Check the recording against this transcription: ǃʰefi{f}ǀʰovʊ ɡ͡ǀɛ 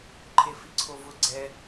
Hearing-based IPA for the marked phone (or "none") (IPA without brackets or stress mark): none